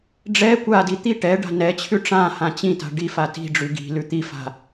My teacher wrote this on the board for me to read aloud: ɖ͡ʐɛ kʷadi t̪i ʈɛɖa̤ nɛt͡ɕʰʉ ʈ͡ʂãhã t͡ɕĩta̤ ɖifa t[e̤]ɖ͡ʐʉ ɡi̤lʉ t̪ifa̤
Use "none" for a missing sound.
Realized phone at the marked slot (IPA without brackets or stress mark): i̤